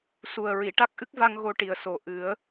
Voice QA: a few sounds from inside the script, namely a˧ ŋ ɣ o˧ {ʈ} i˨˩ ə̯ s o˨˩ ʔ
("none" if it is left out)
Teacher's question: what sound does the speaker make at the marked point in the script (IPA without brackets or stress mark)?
ʈ